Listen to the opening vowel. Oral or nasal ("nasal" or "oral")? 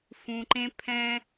nasal